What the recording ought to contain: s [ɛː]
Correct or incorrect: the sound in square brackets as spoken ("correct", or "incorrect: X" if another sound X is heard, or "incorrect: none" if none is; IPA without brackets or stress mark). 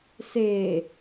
incorrect: eː